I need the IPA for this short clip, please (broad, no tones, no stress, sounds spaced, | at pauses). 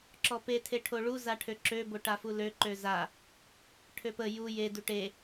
ǁ ɔ p e tʰ e ʈʰ o ɭ u z a ʈʰ ø ǁ ø b o ʈ a f u l ø ǃ ø z a | ʈʰ ø p ə j u j e d u ʈ e